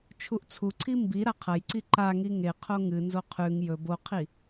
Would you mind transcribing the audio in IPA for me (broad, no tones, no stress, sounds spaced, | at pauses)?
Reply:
t͡ʃʰ u ʔ t͡sʰ u ǀʰ i m b i ɾ a qʰ ɐ j ǀ i ǃ a ŋ i ŋ e qʰ o ŋ ɨ n z o qʰ ʉ ŋ j ɵ b o qʰ i